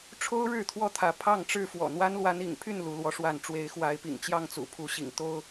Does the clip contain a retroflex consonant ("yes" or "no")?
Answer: yes